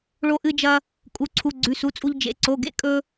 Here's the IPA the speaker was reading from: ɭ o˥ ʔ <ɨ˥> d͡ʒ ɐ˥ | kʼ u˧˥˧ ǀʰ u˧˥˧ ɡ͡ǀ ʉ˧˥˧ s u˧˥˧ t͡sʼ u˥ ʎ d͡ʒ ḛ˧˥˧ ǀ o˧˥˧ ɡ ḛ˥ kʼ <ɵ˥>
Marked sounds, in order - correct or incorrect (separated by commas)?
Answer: correct, correct